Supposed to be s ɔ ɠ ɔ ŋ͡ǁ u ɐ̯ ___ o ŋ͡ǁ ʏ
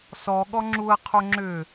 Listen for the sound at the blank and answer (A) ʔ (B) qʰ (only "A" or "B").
B